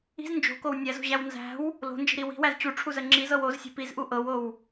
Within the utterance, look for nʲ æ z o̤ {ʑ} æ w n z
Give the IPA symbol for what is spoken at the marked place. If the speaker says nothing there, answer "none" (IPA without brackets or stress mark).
ʑ